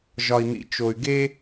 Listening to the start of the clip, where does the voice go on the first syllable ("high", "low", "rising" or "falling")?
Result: low